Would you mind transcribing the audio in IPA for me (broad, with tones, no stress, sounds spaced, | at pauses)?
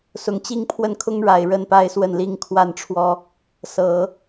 s ʊ˨˩ ŋ t͡ɕ i˥˧ ŋ pʰ w ə˥˩ n kʰ ʊ˥ ŋ ɻ a˨˩ ɪ̯ ɻ ə˥˧ n p a˥˧ ɪ̯ s w ə˥˩ n l i˥ ŋ kʰ w a˥˩ n ʈ͡ʂʰ w ɔ˥ | s ɤ˨˩˦